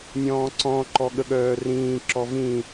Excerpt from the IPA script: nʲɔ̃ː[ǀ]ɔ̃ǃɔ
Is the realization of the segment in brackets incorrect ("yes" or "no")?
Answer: no